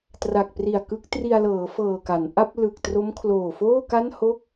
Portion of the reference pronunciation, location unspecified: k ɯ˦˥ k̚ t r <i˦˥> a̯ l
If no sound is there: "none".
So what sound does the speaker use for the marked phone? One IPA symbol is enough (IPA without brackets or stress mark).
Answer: i˧